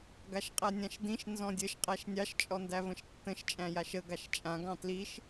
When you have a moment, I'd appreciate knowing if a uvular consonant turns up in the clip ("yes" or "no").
yes